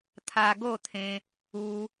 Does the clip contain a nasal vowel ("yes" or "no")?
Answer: yes